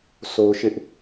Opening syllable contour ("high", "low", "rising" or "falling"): high